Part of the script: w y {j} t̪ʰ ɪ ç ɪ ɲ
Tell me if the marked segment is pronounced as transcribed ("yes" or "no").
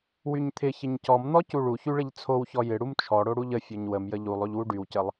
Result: no